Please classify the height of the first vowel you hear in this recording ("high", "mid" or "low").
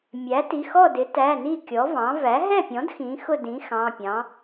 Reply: low